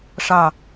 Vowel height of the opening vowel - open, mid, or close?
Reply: open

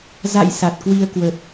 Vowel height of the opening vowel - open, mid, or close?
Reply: open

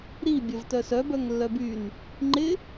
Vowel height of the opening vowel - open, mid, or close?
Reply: close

